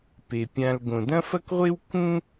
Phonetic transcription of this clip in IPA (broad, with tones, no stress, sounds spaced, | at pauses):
p e˩ pʲ ã˨ l ɡ õ˩ d ɐ̃˥ f ɐ˥ k ʁʷ e˥ w k ũ˥